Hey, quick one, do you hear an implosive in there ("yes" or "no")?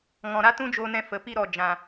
no